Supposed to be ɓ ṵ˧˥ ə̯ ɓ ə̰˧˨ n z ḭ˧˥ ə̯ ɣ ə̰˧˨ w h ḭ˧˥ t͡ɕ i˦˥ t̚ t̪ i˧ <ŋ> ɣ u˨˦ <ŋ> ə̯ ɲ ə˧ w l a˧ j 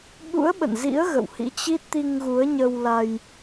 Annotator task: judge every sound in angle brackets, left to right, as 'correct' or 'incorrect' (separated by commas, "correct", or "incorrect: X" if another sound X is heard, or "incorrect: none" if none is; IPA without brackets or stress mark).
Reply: correct, incorrect: none